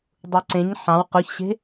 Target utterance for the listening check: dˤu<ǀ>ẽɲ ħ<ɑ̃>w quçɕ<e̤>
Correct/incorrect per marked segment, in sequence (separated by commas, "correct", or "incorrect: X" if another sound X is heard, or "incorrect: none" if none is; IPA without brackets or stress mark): correct, correct, correct